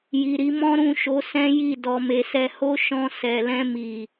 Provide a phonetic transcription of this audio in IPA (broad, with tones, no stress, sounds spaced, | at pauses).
j i˨ ɾ i˧ m ɔ̃˦ ɾ ũ˦˨ ʃ o˨˦ s ɛ̃˦ j i˦˨ d ɔ˧ m e˧ s ɛ˦ h o˦ ʃ ɔ̃˧ s ɛ˨ l ɛ̃˧ m i˨